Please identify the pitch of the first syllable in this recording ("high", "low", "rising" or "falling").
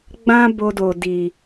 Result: high